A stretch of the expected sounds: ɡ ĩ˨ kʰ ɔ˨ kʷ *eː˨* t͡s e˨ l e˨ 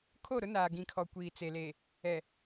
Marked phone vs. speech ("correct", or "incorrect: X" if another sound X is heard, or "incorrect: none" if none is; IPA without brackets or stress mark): incorrect: iː˨